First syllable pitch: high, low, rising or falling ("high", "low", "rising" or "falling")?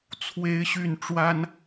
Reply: rising